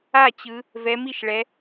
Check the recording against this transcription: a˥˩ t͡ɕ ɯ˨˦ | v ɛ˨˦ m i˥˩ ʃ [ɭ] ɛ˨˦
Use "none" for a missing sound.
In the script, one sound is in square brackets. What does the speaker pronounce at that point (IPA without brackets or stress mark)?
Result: ɭ